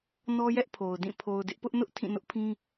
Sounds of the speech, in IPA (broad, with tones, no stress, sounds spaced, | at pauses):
n ɔ˦ j ɛ˦ ʔ pʰ o˨ ʊ̯ d ĩ˦˨ pʰ o˨ ʊ̯ d ɪ˦ ʔ p ʊ˦ ʔ n ʊ˦ ʔ tʰ ĩ˦˨ n ʊ˦ ʔ pʰ ĩ˦